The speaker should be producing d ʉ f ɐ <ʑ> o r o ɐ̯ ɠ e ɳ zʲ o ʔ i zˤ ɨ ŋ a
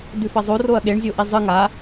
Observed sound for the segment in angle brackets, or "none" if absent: zˤ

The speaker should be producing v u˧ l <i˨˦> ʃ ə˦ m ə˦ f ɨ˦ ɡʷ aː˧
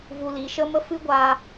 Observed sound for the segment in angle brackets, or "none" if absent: i˨˦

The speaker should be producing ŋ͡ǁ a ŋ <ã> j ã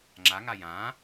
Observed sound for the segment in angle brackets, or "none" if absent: a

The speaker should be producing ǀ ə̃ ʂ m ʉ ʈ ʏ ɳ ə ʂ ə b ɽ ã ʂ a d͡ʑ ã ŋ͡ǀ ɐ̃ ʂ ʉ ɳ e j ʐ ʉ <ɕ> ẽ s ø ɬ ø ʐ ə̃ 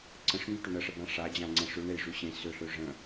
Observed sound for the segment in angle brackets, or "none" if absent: ɕ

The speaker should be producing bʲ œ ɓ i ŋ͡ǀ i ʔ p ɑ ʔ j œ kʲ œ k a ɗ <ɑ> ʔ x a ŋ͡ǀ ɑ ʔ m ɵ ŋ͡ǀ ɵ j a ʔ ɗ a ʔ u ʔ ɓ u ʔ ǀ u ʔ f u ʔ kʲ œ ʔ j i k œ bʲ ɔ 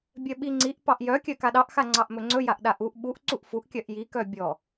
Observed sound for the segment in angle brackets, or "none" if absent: ɑ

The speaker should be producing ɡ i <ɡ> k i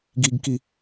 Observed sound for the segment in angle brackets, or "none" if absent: ɡ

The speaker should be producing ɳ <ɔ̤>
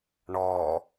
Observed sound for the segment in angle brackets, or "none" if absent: ɔ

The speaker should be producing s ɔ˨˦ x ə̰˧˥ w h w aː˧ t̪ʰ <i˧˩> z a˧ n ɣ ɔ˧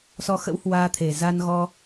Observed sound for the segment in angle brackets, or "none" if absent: e˧˩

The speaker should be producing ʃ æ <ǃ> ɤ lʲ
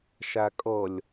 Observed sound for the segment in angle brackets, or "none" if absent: kʼ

